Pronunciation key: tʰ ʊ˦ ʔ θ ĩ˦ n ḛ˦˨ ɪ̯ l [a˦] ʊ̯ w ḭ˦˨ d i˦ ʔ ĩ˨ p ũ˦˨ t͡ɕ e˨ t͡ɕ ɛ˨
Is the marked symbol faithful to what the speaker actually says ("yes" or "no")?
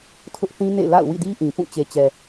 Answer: no